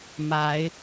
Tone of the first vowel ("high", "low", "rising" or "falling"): rising